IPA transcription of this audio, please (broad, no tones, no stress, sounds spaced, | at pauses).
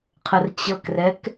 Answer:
qʰ ə r t͡ɕ ɤ k r ɛ k